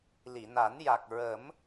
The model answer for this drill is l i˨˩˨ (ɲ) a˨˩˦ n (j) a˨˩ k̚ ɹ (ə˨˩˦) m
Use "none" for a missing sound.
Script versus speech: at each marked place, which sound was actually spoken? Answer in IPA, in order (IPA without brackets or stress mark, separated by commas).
n, j, ə˨˩˦